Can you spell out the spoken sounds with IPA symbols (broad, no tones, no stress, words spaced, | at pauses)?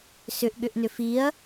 sʏʔ ɠʏʔnʏfiɐ̯